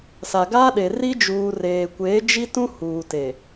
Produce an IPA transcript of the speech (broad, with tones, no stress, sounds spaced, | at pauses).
s a˨ ɡ a˦ ɗ e˨ r i˦ d͡ʒ uː˨ r eː˨ kʷ eː˨˦ d͡ʒ i˦ t ũ˦ h uː˨ t e˨